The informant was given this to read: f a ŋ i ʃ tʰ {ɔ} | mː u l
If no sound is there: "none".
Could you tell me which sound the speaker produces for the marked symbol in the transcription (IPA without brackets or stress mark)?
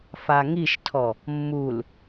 ɔ